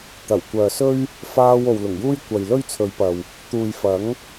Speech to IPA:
t̪ ɐ˨˩ w kʷ œː˨ s ɵ˥ ɥ | f aː˥ w o˨ w l ʊ˨˩ ŋ j uː˥ j kʷ ɐ˨ j l ɵ˥ ɥ t͡sʰ ɵ˨˧ ɥ p ɐ˨ w | t̪ uː˨ j f ɐ˨˥ ŋ

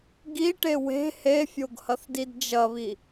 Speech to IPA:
ɡ i ʈ e w e̤ h e fʲ o ɡ h ɐ θ d i d d͡ʒ ɐ β i

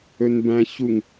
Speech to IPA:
ɵ n b æ̃ ç u ŋ

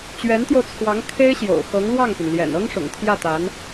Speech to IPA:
t͡ɕ ɥ ɛ˧˥ n t̪ j o˧ ʊ̯ t͡sʰ w ɑ˧˥ ŋ kʰ e˥ ɪ̯ ɕ j o̰˨˩ ʊ̯ x ɤ˧˥ ŋ l w ɑ˥˩ ŋ p y˩ n l j ɛ̰˨˩ n ɤ˥ ŋ ʂ ʊ̰˨˩ ŋ t̪ʰ j ä˥˩ t̪ a˧˥ n

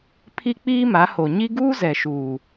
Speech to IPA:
pʰ i˦ k͡p iː˦ m a˨˦ h o˨ ɲ i˦ ɡ uː˦ z ɛ˨ ʃ uː˨

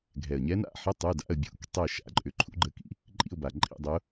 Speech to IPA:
ɡʱ ɛ˨˩ ə̯ ɲ ɛ˧˥ n a̰˥˧ ħ ə˧˥˧ tˤ u˧˥˧ d a̰˧˥˧ ə̯ bʲ ṵ˧˥ k tˤ ɛ˥˧ ʃ a̰˧˥ ǃʼ ʏ˧˥ ǃʰ ṵ˧˥ ɡ͡ǃ ə˧˥˧ k ḭ˧˥ | ǃʼ ḭ˥˧ ʊ̯ b a˨˩ ǃʼ ḭ˥˧ dˤ ʏ˧˥ ʊ̯

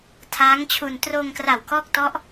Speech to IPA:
tʰ aː˦˥ ŋ t͡ɕʰ u˧ n t r oː˧ ŋ k r a˨˩ w k ɔː˦˥ k̚ t ɔ˦˥ ʔ

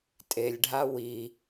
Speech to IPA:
tʼ e lʲ ɖʱ a w i

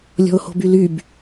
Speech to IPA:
lʲ ɔ̤ ʊ̯ h o̤ b y l y b

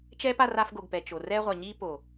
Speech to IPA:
t͡ʃ ɛː˦ p a˧ r a˧ f ɡ o˨ ɡ p ɛ˨ t͡ʃ o˨ r ɛː˧ ʁʷ a˨ ɲ iː˧ p o˨

